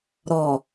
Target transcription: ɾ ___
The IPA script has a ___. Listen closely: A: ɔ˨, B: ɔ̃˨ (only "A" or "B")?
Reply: A